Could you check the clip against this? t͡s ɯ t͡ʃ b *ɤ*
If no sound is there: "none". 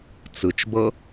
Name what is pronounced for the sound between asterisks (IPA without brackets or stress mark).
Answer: ɤ